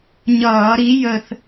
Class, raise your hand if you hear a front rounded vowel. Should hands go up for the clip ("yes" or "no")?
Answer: no